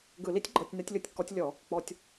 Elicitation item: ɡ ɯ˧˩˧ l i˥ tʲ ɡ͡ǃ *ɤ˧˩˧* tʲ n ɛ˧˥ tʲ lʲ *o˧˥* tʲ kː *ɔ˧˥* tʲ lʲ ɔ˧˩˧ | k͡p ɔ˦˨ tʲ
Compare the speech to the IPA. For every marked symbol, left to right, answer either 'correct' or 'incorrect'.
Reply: correct, correct, correct

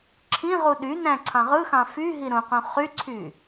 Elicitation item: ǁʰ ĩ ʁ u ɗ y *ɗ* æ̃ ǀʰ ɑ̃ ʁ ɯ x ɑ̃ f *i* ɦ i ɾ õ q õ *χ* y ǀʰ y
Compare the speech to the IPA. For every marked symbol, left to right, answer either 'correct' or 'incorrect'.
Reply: incorrect, incorrect, correct

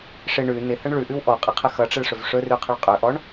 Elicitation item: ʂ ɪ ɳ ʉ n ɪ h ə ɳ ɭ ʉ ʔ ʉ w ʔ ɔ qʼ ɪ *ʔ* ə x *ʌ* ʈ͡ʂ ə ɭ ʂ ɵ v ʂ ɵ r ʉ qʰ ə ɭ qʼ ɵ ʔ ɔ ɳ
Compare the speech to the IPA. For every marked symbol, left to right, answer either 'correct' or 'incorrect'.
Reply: incorrect, correct

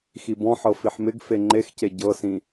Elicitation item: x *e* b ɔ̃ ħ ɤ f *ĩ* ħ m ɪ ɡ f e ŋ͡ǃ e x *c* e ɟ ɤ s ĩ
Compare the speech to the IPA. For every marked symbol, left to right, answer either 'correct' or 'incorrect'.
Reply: incorrect, incorrect, correct

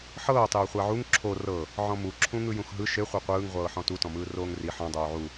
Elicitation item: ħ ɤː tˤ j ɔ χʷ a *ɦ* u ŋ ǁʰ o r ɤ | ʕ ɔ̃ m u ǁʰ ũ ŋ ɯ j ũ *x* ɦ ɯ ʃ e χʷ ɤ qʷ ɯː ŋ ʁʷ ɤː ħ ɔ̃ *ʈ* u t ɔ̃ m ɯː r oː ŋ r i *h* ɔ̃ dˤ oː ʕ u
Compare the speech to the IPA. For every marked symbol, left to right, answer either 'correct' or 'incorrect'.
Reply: incorrect, correct, incorrect, incorrect

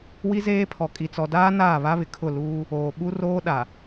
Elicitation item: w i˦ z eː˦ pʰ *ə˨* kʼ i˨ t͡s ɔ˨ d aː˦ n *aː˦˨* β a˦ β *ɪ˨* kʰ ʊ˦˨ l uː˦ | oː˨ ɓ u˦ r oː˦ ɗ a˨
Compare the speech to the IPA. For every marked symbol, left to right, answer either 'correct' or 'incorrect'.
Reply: incorrect, correct, correct

